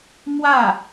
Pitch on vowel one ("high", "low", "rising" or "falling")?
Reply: falling